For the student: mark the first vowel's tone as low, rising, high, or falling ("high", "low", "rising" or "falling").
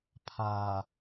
low